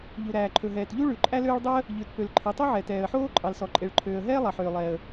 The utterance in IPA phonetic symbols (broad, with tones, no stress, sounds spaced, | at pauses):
ʎ u˩ ɾ æː˩ ǃʰ ɵ˩ ɦ ɛː˩ t ʎ u˥ ɭ ʉ˩ ǃʼ æ˥ l øː˥ ɭ dˤ ø˥ ə̯ | ʎ ʉ˩ t p ø˩ l ǃʰ e˩ tˤ ɵ˥ ʕ ɛ˩ t ɛː˩ ə̯ ħ oː˥ ǃʼ ɑ˩ l s ɔ˩ ǃʼ e˩ ɭ ǃʰ øː˩ ə̯ ɦ ɛː˥ lˠ ɑ˩ ħ øː˩ lˠ ɛː˩ ə̯